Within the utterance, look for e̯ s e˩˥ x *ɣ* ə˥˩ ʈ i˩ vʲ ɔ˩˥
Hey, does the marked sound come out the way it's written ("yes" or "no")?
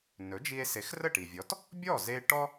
no